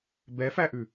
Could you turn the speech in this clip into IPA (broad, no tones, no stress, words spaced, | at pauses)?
bɛfæʔʉ